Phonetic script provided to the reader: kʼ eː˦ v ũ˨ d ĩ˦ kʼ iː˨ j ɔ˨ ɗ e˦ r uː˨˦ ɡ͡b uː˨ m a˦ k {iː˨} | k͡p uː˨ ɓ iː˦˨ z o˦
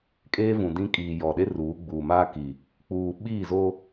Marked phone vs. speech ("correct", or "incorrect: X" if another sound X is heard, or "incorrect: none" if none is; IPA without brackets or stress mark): incorrect: i˨